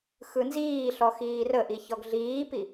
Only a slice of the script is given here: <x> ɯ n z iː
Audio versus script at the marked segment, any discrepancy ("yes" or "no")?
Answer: no